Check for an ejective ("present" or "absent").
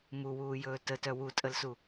present